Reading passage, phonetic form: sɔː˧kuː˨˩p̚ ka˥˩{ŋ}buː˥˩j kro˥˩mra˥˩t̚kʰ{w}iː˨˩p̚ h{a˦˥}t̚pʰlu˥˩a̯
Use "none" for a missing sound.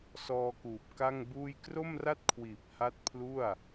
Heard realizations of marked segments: ŋ, w, a˦˥

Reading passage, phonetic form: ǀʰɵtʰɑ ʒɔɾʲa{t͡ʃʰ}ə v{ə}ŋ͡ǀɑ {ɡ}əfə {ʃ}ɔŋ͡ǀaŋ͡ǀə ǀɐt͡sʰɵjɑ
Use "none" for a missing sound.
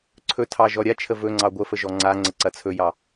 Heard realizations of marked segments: t͡ʃʰ, ɵ, ɡʷ, ʒ

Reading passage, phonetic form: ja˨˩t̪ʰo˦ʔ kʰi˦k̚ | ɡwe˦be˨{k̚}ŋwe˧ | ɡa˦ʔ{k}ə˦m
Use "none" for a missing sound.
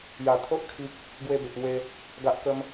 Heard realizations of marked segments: k̚, k

